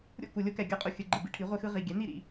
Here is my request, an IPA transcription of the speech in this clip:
ɾʲ o̰˥˨ k u˨ lʲ o˦ k ɛ˨ ɡʲ ʌ˦ qʼ u˨ xʲ ɯ˨ ɡ͡ǃ ɯ˨ b ḭ˦ ʈʰ i˩˥ ʁʷ e˦ x ɯ˦ ʁ i˨ ɡʲ ɛ˩˥ n̪ i˥˨ ɾ ḭ˨

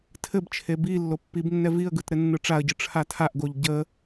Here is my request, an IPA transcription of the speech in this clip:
tʰ ɘ b t͡ʃʰ e b i lː o pː i b nː ɛ v i ə̯ ɡ ɯ t ɾ ɘ nː ɯ ʈ͡ʂ a ə̯ ɟ ɯ ʈ͡ʂʰ a tʰ a ʔ ɡ o ʎ ɟ ə

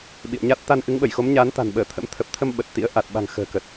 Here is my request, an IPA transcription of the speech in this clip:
ɓ ḭ˧˨ ə̯ ɲ a˦˥ t̚ t̪ a˧ n ʔ ɨ˨˦ ŋ ɓ ə˧˩ j x o˨˦ m ɲ aː˨˦ n t̪ a̤˨˩ n ɓ əː˧˩ t̪ʰ ə̰˧˥ m t̪ʰ ə˨˩ p̚ t̪ʰ ə˧ m ɓ ə˨˩ t̚ t̪ ḭ˧˥ ə̯ ʔ a˨˩ t̚ ɓ a̤˨˩ ŋ x ə̤ː˨˩ k ə˨˩ t̚

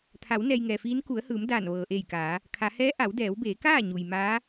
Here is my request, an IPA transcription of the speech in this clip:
t̪ʰ a˩˧ w n ɛː˧ j ŋ ɛː˩ f iː˧˥ n k u˩˧ ə̯ h ɯː˩˧ m d aː˧˩ n ʋ ɤː˩ ʔ eː˧˩ j k aː˩˧ | kʰ a˩˧ h ɛː˧˥ ʔ a˩˧ w d ɛː˩˧ w b eː˩˧ k aː˥˨ ɲ u˩ j m aː˧˥

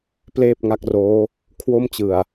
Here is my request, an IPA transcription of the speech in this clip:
p l eː˥˩ p̚ ŋ a˦˥ k̚ r oː˦˥ | kʰ w o˥˩ m t͡ɕ ɯ˨˩ a̯

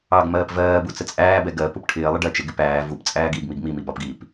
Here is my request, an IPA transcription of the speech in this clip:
ɑ ɡ m ɜː p v ɜː b u t͡s ə t͡sʼ æː b ɛ ɡ ɜ p u p ʈʰ ɪː lˠ ə ɖ ɜ t͡ʃ ɪ ɡ ɪ p æː v u p t͡sʼ æː ɡ iː ɡ m i ɡ m i m i b ɒ p ɡ iː p

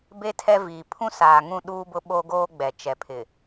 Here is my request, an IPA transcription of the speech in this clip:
b e˦ tʰ ɛ˦ v iː˨ pʰ ũ˦ s aː˨ ŋ ũ˦˨ ɗ uː˦ b ʊ˦ ɓ o˦ ɡ oː˦ ɡ͡b ɛ˨ t͡ʃ ɛ˨ pʰ ɪ˨

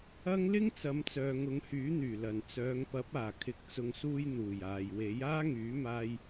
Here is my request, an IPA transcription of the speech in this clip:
ɐ˧ ŋ l ɪ˥ ŋ t͡s ɐ˨˧ m t͡s œː˨ ŋ ʊ˨˧ ŋ h yː˨˥ n̪ yː˨˩ l ɐ˨˩ n t͡s œː˨˧ ŋ p ɐ˨˥ p̚ aː˨˩ kʰ ɪ˨ k̚ t͡s ʊ˨ ŋ s uː˧ j n̪ uː˨˩ j aː˨ j w e˨˥ j aː˥ ŋ yː˨˥ m aː˧ j

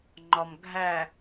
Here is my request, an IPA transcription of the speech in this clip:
ŋ͡ǃ ɒ m ɡʱ æ

